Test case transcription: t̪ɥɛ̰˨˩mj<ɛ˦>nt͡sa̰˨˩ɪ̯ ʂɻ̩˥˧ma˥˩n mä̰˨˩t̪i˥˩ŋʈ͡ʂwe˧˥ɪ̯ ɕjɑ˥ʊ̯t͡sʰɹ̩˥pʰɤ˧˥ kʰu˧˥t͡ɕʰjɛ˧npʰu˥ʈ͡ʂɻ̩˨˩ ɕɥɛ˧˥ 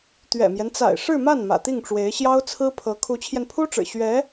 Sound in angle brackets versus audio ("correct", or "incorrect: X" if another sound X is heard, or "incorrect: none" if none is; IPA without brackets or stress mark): correct